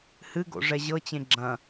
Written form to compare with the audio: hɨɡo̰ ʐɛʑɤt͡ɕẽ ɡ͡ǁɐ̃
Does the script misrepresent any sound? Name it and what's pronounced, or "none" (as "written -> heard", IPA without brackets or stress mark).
none